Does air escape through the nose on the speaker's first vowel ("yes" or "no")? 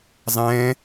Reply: yes